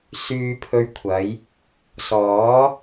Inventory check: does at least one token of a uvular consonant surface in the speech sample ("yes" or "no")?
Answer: no